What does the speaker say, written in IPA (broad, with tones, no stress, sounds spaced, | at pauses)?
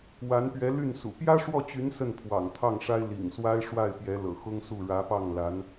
w a˧˥ n p ɥ ɛ˧˥ l y˥˩ n s ṵ˨˩ p j ä˥ ʂ w ɔ˥˩ t͡ɕ y˧˥ n s ə˥˩ n pʰ w ɑ̰˨˩ ŋ t̪ʰ ɑ˥˩ ŋ ʂ a˥ ɪ̯ l ḭ˨˩ ŋ s w a˥ ɪ̯ ʂ w a˥˩ ɪ̯ p j ɛ˧˥ l ɤ̰˨˩ x ʊ˥ ŋ s u˥˩ ɻ ä˧˥ p ɑ˥˩ ŋ l a˧˥ n